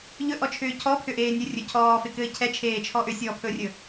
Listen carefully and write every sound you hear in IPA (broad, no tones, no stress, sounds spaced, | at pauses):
ʎ ɵ ʔ ɔ t͡ʃʰ ʏː cʰ ɔ pʰ ʏ ʔ eː nʲ ɵ rʲ ɵ cʰ ɔː f e k ɘː cʰ ɛ t͡ʃʰ eː t͡ʃʰ ɔ ʔ ʏ sʲ ɔː pʰ ɵː rʲ ɵ